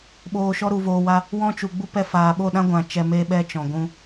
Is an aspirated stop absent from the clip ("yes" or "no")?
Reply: yes